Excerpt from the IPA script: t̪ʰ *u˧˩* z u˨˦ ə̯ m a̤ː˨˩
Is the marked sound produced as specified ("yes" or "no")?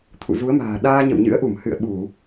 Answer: no